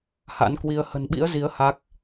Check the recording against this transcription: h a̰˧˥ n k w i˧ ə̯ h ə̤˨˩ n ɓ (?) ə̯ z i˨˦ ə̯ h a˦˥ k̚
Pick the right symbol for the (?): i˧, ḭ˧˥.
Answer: ḭ˧˥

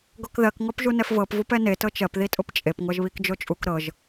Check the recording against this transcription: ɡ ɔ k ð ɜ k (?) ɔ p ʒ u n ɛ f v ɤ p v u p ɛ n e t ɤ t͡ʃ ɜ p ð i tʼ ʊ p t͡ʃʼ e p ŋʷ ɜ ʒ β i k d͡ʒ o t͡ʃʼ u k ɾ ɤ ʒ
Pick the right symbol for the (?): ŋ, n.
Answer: ŋ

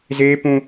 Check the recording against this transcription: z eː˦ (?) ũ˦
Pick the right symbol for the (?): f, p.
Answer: p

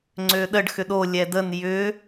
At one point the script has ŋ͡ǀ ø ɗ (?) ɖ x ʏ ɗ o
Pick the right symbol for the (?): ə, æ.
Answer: ə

